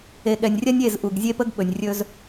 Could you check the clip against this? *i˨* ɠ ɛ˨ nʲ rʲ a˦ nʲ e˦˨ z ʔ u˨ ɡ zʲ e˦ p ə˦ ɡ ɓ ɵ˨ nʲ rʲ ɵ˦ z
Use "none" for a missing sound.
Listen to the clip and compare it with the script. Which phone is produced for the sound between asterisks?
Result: e˨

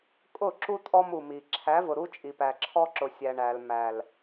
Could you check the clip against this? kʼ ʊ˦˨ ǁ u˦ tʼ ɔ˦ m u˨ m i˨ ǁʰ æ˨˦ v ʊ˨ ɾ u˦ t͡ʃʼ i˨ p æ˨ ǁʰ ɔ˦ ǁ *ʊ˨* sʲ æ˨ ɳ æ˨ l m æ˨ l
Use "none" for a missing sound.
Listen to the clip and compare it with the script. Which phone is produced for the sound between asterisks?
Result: ʊ˨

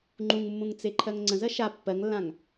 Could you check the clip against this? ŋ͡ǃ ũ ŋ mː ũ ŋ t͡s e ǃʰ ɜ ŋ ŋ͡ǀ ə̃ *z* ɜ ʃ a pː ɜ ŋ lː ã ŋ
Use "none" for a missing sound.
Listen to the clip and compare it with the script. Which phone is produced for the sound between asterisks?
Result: z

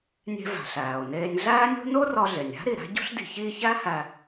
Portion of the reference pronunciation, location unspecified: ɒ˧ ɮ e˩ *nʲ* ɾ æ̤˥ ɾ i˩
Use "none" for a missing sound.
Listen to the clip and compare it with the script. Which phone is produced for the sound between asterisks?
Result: nʲ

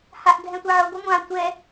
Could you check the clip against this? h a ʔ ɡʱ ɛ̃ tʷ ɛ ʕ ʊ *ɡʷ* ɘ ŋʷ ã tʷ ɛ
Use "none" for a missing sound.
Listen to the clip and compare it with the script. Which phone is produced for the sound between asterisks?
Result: ɡʷ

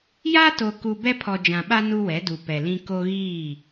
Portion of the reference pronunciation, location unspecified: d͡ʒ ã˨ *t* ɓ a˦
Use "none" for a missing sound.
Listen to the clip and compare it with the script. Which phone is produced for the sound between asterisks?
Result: none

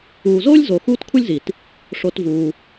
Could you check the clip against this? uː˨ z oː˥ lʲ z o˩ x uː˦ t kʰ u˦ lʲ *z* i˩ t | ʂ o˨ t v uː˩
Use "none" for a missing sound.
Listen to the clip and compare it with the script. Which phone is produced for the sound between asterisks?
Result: z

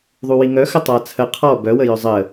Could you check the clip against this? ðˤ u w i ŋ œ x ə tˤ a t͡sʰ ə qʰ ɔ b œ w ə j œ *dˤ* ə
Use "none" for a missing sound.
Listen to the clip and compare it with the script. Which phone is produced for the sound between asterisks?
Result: zˤ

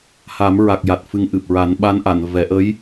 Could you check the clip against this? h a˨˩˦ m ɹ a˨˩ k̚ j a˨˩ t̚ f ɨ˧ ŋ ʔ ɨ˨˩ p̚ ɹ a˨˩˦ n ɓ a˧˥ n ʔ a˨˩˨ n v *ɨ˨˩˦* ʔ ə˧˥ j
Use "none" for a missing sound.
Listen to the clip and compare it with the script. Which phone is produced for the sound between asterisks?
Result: ɛ˨˩˦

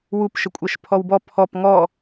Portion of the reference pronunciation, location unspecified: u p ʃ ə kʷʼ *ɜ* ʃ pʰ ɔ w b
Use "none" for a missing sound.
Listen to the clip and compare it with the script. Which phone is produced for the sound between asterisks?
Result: ɜ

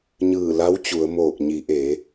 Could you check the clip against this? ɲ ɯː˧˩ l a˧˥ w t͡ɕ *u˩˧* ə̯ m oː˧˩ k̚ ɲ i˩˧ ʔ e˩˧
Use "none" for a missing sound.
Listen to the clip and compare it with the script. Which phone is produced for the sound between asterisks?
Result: u˩˧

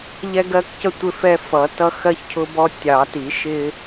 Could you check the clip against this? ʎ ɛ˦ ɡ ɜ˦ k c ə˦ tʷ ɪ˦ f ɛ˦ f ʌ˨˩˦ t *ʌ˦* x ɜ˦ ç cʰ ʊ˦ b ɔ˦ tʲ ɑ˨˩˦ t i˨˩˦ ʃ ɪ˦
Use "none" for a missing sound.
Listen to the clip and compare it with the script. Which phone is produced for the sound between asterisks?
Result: ʌ˦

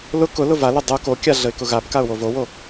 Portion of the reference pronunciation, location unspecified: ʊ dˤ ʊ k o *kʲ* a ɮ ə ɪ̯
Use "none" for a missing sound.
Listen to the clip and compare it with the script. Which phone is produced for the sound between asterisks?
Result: kʲ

